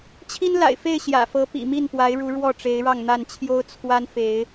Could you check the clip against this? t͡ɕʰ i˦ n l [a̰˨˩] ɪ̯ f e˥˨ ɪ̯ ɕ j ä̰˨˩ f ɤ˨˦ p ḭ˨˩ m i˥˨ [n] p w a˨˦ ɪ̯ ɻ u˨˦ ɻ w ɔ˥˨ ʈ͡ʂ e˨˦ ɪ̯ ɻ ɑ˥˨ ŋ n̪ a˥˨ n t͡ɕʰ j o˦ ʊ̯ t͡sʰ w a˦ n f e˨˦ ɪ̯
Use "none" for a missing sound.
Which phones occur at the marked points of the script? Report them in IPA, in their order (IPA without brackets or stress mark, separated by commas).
a̰˨˩, n